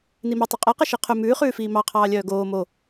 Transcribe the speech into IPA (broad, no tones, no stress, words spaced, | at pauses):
nimɛ tˤʉqʼæqe ʃiqʰɵ mʉːχʉːfiː mɑqʰɑːlʲœː ɡoː mo